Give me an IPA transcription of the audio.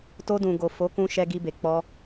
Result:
to˧dũ˨ɡo˨ fo˨˦kũ˧ ʃɛ˧ɡi˧be˨ k͡pɔ˧

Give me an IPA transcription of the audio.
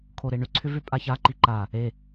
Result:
kʰoɾeɳʏ ǀʰʏvʏpʼaça ǃiǃa | e

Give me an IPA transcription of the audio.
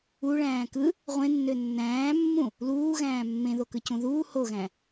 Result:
uɭæ̃ː kɯ | ʁʷẽnːø nːæ̃ːmːũ | luːɣæ̃ː mːẽðokɯcũ ðuː hoɣæ̃

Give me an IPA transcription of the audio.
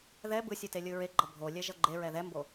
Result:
ðɛ bɯsʲu telʲɯɹeɡ͡ǃʌ bʱo lʲɛʒʌɡ͡ǃeɹɛ ðɛmbo

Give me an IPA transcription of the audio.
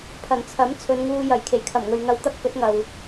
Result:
pʰɐ˨˩nt͡sʰɐ˨˥m t͡sʰɵ˨˧nŋuː˧jɐ˨˩j kʰe˨˩jkʰɐ˨˩mŋɵ˨ɥŋɐ˧w t̪ɐ˥k̚fɵ˨˥t̚ŋɐ˨w

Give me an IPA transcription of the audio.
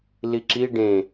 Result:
liǁi ɖẽ

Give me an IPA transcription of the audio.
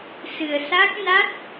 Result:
sɨ˨˩ə̯sa˦˥k̚ na˦˥t̚

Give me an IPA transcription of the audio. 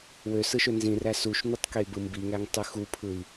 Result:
wø sɯʃønzĩræ suʃnutˤ key̯bɯmbiŋæŋ tˤɯxupʰɯi̯

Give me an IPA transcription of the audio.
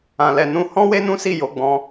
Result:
ã˨lɛ˨nũ˧ hɔ̃˦we˦nũ˦si˦˨ jo˨˦ ɡ͡bɔ̃˧

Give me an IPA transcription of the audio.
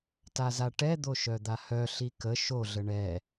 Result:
tazaʈɛd̪o ʃœd̪ahœ ɬikə ʃoɮə ɳɛ

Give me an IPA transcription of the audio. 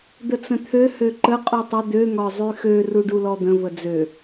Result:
d̪ət͡sə̃t̪ʰø høǃə qʼutˤə d̪ø ŋɒzˤyxø ruɖulɔd̪ə̃ vəd͡zø

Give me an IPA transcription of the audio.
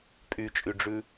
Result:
pʼyt͡ʃʼyɖ͡ʐʉ

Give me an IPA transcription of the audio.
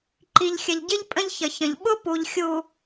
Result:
ǃi˨ʎxʲə˨ʎɟɪ˦ʎ pʼə̃˦ʎçə˨ çə̃˨ʎ ɓʊ˦ pu˨ʎ xʲu˨

